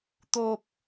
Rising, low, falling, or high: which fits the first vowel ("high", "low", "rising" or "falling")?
low